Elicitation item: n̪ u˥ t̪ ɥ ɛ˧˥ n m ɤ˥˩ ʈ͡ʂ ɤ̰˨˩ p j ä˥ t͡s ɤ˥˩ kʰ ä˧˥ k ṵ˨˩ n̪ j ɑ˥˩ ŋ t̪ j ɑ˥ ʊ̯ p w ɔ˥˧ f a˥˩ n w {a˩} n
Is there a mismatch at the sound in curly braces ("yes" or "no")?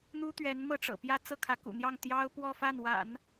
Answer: yes